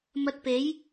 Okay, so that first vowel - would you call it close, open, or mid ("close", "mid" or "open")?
open